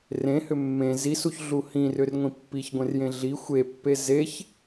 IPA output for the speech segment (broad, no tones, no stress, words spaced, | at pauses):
rẽhʏ mːẽ zisuçɮu hĩrʏrŋʷĩ pːiçɡʷẽrjẽ ɮi xʷepːe zeç